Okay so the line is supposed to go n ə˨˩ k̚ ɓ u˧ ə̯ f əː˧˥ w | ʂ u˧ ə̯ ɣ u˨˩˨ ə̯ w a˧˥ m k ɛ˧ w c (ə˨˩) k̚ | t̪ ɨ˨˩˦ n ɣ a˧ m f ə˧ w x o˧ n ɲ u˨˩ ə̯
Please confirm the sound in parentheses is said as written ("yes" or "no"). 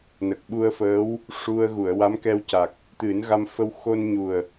no